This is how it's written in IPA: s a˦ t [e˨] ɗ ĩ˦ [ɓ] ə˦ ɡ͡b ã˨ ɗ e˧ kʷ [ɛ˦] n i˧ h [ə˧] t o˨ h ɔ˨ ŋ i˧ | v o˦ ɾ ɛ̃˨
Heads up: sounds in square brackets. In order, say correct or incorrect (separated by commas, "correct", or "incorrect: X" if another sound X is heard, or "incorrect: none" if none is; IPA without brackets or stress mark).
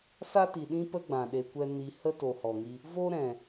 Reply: incorrect: i˨, incorrect: p, correct, incorrect: ə˦